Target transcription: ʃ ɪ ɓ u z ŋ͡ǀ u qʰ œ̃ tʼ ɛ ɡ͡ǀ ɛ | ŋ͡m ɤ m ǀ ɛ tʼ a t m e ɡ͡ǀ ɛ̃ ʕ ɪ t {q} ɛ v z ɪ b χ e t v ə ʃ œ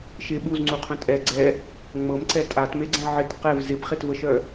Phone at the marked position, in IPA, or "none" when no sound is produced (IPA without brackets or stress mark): q